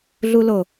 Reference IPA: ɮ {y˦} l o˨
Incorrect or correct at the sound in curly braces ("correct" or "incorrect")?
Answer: incorrect